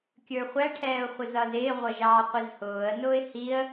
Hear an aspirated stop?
yes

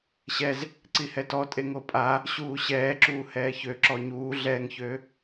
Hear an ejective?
yes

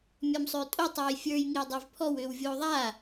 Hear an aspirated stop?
yes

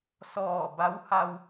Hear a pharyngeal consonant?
no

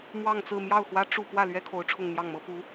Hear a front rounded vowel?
no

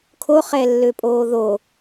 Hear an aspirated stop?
yes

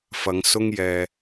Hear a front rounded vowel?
no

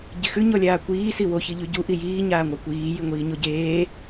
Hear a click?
no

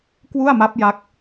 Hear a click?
no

